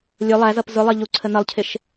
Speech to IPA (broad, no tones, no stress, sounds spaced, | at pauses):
lʲ ʊ lˠ æ z ʌ p z ʊ lˠ ɜ ʎ u ǀʰ ə n ʌ lˠ cʰ ɪ ʃ